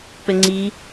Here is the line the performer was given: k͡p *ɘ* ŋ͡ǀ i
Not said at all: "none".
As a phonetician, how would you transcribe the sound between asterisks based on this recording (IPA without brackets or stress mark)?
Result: ɘ